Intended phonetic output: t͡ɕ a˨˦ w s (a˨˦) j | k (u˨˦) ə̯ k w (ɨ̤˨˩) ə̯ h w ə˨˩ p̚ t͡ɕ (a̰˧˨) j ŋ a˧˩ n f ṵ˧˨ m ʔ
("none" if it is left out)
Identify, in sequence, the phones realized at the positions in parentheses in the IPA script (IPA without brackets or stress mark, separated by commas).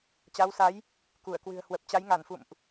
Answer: a˨˦, u˧˩, ɨ̤˨˩, a˨˦